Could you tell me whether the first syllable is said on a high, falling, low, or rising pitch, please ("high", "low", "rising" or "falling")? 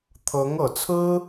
rising